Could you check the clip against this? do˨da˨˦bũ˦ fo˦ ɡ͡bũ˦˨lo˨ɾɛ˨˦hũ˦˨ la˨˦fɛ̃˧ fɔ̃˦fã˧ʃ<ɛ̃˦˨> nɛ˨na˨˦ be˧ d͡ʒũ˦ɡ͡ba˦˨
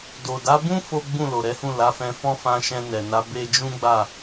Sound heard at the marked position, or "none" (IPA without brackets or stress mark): ɛ̃˧